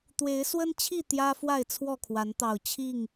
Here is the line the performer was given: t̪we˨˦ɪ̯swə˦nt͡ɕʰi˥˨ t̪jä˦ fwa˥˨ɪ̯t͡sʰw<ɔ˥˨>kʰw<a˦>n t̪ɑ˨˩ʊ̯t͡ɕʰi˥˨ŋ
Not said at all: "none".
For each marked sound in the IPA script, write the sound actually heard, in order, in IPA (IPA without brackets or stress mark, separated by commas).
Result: ɔ˥˨, a˨˦